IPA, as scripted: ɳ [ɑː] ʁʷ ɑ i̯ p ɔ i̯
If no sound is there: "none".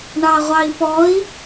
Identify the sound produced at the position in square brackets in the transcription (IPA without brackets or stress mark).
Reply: ɑ